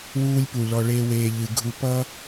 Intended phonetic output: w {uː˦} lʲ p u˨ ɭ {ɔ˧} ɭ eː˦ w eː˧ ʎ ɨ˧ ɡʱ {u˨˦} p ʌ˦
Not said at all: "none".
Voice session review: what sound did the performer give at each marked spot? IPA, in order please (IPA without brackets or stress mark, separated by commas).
uː˦, ɔ˧, u˦